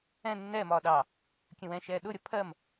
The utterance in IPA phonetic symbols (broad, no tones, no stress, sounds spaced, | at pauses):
ɛ̃ nː ɛː m ɒː ɗ ɑ | kʲ ə̃ w ɛ̃ ʃ ɛː ɗ ʊ ɾʲ ʌ pʰ ɜ m